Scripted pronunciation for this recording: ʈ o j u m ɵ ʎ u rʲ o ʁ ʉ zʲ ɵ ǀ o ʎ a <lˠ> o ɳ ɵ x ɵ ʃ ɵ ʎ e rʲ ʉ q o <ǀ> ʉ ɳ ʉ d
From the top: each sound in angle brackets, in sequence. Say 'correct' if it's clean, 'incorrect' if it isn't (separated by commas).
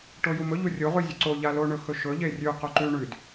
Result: incorrect, incorrect